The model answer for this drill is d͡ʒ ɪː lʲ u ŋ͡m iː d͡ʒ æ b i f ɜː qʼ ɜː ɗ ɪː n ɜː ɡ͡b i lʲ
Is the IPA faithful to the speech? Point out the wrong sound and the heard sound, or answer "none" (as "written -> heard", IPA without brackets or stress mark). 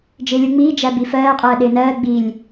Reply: none